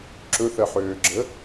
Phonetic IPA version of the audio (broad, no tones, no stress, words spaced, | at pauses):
ǁɵθɜħøːɡ͡ǁə